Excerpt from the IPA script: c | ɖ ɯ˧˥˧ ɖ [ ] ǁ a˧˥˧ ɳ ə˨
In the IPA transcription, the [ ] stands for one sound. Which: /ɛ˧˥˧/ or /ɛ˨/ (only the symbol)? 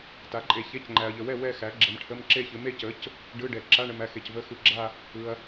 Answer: ɛ˨